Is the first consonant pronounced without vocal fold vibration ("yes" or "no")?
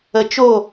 yes